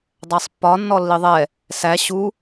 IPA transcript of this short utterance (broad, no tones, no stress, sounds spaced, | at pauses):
dˤ æ sˤ pː ɒ nː ɔ lː i ðˤ ɛ | s æ ɕ u